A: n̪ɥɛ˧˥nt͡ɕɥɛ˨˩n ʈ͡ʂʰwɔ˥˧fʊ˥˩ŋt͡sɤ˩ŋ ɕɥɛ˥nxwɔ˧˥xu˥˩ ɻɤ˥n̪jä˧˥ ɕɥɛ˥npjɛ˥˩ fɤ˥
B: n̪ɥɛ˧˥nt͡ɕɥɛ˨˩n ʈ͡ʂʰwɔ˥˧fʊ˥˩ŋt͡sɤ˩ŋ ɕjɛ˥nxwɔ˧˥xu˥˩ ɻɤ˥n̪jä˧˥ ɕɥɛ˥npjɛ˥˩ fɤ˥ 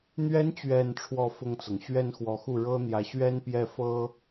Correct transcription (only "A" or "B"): A